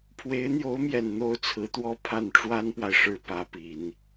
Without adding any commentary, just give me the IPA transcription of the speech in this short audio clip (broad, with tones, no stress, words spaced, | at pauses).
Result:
pʰwe˧˥ɪ̯n̪jo˧˥ʊ̯mjɛ˨˩n n̪o˥ʊ̯t͡sʰɹ̩˧˥t̪wɔ˥˧ pʰa˥˩n ʈ͡ʂwa˥npwa˨ɪ̯ʂɻ̩˧˥ pä˧˥pi˨˩˦n